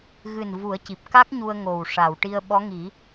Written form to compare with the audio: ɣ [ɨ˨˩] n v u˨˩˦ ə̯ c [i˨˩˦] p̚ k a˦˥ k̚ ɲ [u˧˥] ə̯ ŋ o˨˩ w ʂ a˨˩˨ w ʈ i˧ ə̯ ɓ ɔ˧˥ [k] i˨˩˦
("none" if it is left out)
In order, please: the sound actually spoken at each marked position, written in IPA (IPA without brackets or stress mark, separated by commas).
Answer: ɨ˨˩, i˨˩, u˧, ŋ